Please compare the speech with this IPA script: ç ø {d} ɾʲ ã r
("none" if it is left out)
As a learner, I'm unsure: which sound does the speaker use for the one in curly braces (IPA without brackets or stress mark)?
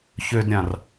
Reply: d